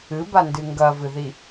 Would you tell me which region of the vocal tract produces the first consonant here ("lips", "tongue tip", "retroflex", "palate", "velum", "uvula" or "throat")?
lips